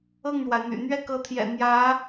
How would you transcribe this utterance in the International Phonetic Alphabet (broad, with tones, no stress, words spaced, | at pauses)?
ɤ˥˩ŋɻwa˩ɪ̯n̪y̰˨˩ n̪ɥɛ˥˩kɤ˧˥t̪ʰjɛ̰˨˩ n̪jä˧˥